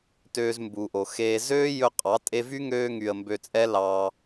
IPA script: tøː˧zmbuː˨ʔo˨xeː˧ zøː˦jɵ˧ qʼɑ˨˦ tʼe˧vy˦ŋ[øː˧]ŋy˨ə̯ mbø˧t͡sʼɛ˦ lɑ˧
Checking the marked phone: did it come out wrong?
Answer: no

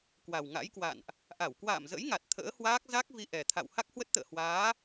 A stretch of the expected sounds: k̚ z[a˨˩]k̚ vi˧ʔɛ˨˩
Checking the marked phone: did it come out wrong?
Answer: yes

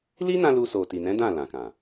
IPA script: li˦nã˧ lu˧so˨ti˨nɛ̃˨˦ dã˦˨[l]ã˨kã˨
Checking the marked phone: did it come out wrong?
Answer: no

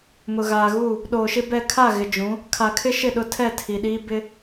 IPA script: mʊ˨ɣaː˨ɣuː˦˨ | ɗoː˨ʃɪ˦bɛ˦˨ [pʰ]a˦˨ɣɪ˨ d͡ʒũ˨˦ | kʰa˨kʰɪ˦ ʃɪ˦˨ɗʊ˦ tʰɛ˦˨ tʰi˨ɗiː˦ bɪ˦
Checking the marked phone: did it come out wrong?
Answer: yes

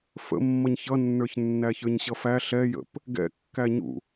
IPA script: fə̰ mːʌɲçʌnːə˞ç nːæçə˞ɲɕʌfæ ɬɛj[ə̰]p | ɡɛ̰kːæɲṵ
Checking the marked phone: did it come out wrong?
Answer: no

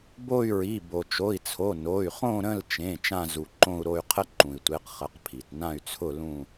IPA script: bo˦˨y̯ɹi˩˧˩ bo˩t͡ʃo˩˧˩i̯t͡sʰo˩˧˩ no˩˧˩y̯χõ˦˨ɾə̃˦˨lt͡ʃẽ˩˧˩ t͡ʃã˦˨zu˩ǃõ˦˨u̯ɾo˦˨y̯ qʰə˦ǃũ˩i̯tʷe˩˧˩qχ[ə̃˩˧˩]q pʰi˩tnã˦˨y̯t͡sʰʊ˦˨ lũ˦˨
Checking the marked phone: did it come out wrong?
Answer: yes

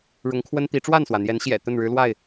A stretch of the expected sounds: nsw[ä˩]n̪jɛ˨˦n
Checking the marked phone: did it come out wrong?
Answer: no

